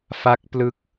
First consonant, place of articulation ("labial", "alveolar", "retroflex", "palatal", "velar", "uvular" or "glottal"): labial